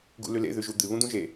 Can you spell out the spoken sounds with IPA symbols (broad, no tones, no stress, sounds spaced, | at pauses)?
ɡ ṵ l ʉ l ḛ ð ʉ ʒ u d̪ ɨ β ũ d̪ ũ ʒ e